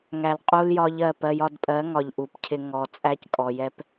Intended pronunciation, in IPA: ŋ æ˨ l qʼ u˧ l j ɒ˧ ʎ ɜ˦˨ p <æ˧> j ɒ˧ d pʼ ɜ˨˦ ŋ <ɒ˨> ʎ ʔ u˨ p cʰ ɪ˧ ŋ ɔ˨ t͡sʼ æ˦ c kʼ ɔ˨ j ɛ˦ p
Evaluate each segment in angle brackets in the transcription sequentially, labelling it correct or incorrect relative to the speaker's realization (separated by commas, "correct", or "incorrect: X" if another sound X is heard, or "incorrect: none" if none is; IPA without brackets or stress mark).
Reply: incorrect: ɜ˧, correct